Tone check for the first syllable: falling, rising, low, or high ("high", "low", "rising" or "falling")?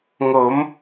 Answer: rising